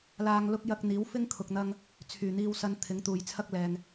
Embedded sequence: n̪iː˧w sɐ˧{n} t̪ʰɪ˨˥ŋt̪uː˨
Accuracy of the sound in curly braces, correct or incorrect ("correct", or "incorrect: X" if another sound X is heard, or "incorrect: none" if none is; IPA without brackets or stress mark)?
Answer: correct